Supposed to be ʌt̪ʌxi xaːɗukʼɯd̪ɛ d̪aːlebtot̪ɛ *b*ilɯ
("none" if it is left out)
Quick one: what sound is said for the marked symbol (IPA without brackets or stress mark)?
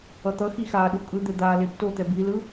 b